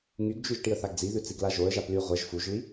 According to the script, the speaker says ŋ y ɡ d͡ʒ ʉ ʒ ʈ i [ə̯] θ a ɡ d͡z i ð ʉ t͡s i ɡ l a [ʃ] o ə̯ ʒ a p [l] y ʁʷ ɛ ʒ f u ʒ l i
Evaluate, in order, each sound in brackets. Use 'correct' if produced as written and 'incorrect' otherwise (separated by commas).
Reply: correct, incorrect, correct